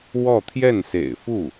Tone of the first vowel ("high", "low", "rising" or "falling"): falling